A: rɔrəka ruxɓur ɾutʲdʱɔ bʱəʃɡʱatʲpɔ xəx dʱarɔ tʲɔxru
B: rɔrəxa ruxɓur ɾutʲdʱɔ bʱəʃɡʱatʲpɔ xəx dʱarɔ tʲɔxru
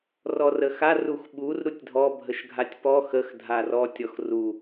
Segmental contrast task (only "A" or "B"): B